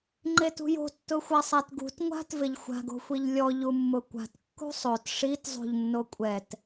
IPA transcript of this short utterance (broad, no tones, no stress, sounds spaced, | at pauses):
ŋ͡ǃ e t ṳ j o̤ tː ʊ xʷ a sˤ a t ɡ ṳ t ŋʷ a̤ t v ɪ ʎ xʷ a̤ ɡ o̤ xʷ i ʎ lʲ ɔ ʎ u mː ʊ kʷ a̤ t kː ṳ sˤ o t ʂ i t zˤ o̤ ʎ nː o kʷʼ ɛ t